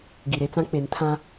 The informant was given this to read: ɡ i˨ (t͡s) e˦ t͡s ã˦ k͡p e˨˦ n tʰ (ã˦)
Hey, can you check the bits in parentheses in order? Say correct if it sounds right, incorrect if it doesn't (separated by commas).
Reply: incorrect, correct